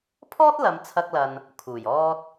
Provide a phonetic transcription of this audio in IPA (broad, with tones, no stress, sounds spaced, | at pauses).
pʰ ɔː˥ t̚ l ɐ˨˧ m t͡sʰ ɐ˧ k̚ l ɐ˨ n | kʰ uː˨˩ j ɔː˧ t̚